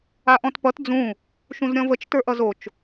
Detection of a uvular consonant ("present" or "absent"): absent